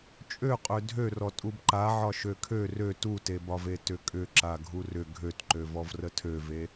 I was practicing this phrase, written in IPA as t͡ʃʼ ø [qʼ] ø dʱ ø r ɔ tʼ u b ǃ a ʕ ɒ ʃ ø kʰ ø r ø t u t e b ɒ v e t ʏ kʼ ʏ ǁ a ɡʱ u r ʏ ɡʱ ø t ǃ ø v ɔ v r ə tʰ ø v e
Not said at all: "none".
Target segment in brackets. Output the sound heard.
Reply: qʼ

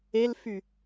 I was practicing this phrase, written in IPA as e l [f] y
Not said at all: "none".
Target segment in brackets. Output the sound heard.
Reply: f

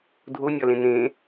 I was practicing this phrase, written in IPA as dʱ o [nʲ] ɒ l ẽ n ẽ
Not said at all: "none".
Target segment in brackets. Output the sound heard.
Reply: nʲ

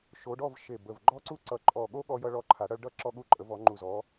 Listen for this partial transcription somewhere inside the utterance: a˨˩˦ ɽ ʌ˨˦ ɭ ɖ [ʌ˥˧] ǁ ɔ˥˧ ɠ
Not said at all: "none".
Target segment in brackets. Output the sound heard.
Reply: ʌ˥˧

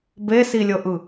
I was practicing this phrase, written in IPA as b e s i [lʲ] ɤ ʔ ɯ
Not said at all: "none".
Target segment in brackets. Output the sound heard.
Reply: lʲ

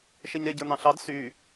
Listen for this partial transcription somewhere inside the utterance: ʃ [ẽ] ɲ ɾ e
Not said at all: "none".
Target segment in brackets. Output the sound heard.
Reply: e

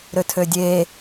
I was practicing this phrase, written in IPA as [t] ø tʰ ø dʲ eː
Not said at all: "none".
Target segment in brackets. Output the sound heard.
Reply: ɾ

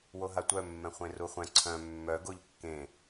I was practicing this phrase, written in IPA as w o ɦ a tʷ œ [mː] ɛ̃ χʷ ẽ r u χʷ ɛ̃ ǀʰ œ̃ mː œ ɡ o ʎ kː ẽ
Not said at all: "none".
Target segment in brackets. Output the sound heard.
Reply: mː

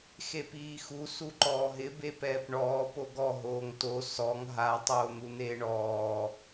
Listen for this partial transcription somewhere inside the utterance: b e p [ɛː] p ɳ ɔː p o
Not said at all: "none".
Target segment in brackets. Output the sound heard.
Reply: ɛː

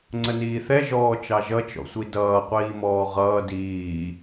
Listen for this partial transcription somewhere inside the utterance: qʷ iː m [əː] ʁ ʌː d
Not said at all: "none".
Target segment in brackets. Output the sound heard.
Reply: ɔː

